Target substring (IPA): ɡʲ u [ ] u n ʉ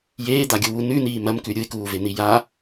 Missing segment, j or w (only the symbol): w